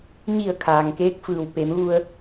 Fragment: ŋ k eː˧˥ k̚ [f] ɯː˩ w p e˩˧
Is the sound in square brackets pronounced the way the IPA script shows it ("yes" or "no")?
yes